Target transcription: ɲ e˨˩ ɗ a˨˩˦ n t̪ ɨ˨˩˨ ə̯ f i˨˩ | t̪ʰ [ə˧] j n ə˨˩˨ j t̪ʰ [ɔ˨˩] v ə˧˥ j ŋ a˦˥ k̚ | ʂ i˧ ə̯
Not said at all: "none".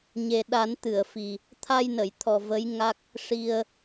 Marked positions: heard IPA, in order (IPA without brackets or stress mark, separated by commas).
a˧, ɔ˨˩